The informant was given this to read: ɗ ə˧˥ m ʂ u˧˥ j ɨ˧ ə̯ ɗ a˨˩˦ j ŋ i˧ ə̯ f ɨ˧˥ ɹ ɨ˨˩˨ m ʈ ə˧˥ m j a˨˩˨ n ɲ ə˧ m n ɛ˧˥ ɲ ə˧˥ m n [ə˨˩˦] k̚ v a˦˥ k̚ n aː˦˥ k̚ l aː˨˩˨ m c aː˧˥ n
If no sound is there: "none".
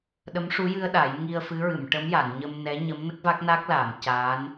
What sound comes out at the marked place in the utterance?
ə˦˥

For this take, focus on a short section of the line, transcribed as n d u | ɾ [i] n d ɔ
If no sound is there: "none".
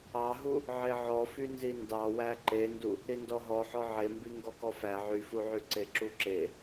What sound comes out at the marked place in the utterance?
i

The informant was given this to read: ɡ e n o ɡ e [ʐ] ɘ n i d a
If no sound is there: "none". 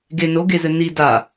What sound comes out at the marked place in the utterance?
z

